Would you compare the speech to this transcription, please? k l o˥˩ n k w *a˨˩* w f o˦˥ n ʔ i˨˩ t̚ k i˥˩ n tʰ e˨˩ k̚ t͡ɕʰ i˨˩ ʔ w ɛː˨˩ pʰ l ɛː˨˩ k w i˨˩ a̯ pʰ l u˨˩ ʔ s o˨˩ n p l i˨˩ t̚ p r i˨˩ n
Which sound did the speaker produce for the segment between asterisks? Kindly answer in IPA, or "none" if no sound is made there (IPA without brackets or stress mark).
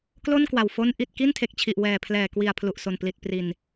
a˨˩